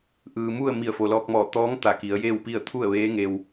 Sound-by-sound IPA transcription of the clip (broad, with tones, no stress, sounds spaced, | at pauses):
ʔ ɯː˩ m u˥˨ ə̯ m i˧˩ ə̯ f o˩ l ɔː˧ k̚ m ɔː˧˩ t̪ ɔː˧˥ ŋ t̪ a˧˩ k i˩˧ ə̯ j eː˥˨ w p i˥˨ ə̯ t̪ʰ u˥˨ ə̯ ʋ eː˧˥ ŋ e˧ w